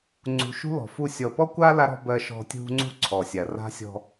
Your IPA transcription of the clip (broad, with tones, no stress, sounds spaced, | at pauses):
ŋ͡ǀ ṳ˨ ʃ ṳ˦ l ɔ̤˨ f u˦˨ sʲ ɔ˨ p ɔ˦ kʷ a˦ l a˦ ɾ ɔ̤˦ b ɜ˦ ʃ ɔ̤˦ tʲ ṳ˦ ŋ͡ǀ ṳ˦ ǀʰ ɔ˨ sʲ a˨ r a̤˦ sʲ ɔ̤˦